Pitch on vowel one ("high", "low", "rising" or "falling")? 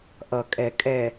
low